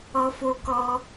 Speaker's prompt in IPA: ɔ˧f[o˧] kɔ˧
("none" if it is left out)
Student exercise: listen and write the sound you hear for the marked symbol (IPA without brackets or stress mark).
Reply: o˧